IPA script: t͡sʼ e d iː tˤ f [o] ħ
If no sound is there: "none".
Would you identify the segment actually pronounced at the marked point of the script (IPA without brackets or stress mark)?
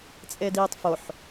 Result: o